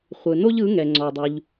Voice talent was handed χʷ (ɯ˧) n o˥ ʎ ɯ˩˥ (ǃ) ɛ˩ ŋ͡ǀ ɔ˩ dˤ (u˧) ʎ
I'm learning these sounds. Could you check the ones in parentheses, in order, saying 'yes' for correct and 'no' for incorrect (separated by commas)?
no, no, no